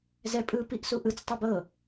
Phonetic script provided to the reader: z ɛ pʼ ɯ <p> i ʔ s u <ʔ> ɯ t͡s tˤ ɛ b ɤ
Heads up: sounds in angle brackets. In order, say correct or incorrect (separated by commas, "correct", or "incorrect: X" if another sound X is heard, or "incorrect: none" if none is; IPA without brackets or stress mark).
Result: correct, correct